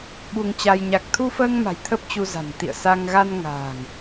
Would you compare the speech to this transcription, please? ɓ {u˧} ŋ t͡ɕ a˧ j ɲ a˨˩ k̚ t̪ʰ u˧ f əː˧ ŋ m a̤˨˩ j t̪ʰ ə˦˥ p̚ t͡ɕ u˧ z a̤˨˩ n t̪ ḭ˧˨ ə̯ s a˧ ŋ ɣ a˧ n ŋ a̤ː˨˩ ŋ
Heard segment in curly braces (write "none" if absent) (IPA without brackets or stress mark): u˧